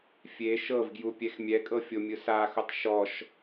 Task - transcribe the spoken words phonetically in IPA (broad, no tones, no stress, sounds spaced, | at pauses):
fʲ e ʃ ɤ v ɡ j u pʲ ɛ x mʲ ɛ kʼ ɤ fʲ o mʲ ɯ s a x u tˤ ʃ ɔ ʃ